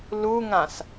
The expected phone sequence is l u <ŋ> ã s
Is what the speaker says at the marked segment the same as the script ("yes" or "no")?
yes